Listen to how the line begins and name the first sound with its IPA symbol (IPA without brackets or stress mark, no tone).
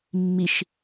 mː